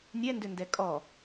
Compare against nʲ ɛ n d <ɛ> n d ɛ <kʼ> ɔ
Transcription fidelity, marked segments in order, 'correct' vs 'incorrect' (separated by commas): incorrect, correct